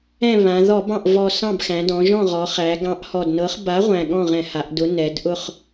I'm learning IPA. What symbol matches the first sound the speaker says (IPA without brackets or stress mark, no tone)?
ɛ̃